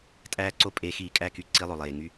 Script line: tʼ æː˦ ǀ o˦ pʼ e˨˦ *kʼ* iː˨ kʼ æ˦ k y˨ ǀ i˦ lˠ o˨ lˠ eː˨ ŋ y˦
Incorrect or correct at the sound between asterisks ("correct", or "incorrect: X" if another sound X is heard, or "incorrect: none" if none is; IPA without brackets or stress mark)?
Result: incorrect: x